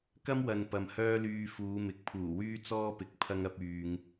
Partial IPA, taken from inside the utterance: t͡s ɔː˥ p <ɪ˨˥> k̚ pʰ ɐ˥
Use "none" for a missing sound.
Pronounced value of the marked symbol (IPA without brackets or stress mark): ɪ˨˥